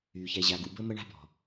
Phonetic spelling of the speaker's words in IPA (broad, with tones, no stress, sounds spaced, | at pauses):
y˨ ç ɛ˨ ʑ a˨ ɡ ṵ˨ b ə˦ m ə˦ ɳ a̤˦ b ɔ̤˨